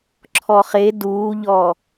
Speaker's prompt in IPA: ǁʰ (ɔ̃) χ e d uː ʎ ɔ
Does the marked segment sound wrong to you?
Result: yes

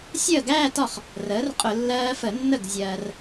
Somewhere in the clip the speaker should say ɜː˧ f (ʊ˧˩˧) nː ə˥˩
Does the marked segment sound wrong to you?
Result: yes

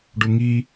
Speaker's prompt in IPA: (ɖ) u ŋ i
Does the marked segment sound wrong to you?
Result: no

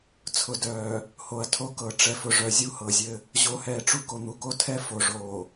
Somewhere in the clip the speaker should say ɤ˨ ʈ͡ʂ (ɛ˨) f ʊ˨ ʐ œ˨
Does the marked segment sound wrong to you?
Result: no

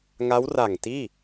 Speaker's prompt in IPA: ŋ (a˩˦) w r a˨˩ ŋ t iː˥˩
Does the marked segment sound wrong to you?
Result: yes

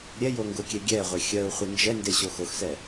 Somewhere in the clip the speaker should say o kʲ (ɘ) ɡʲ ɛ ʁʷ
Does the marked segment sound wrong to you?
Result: yes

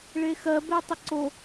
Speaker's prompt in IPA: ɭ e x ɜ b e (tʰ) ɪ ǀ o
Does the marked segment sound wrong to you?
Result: yes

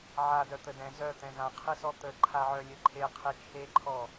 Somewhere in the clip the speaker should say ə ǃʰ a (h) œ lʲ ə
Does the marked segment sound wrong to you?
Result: yes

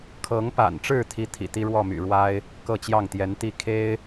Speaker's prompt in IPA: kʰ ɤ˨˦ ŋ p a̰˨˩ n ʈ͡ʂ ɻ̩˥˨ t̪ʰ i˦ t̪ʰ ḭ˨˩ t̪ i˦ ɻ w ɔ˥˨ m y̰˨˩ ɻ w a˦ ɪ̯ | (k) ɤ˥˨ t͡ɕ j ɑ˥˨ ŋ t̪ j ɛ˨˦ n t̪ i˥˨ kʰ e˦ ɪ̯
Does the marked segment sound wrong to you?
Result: no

